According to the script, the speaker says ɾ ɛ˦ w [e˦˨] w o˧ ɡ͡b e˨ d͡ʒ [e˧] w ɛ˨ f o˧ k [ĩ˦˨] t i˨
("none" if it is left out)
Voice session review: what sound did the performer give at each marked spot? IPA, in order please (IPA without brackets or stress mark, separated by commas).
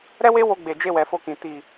e˦, e˧, ĩ˨